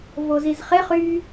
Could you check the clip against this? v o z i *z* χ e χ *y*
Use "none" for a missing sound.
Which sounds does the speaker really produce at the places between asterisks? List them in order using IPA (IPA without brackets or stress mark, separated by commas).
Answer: z, y